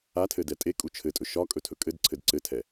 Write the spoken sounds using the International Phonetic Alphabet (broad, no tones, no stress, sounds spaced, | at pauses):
a tʰ ɘ d ɛ tʼ e kʼ u t͡ʃʰ ɘ tʼ ɵ ʃ ɒ kʼ ɵ tʰ ɵ kʼ ɘ d ǀʰ ɘ d ǀ ɘ tʰ ɛ